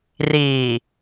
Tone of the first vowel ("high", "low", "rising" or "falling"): low